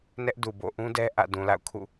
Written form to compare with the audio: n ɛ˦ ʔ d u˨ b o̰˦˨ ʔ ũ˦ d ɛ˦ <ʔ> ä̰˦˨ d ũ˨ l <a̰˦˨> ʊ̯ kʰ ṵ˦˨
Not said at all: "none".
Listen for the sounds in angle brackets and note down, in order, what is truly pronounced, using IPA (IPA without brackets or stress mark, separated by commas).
ʔ, a̰˦˨